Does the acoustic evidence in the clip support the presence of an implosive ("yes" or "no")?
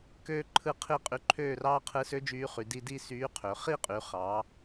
no